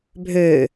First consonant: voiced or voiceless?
voiced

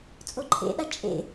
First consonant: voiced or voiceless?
voiceless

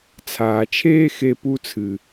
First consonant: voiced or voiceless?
voiceless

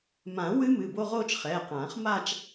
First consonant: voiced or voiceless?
voiced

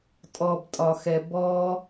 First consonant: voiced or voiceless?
voiceless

